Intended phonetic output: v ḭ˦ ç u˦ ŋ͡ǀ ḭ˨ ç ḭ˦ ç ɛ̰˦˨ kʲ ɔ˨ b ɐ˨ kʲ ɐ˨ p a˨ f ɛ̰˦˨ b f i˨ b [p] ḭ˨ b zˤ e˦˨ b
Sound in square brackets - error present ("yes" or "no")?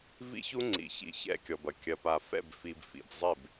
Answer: yes